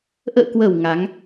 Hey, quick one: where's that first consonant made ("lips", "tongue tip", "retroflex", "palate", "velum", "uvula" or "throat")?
throat